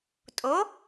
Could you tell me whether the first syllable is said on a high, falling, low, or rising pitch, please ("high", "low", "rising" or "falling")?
rising